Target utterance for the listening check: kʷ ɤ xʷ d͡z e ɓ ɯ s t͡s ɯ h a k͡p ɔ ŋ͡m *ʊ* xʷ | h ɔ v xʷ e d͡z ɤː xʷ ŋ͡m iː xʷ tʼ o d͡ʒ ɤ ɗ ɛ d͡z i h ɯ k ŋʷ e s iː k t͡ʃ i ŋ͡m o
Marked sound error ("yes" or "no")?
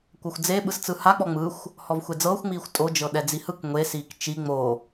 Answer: yes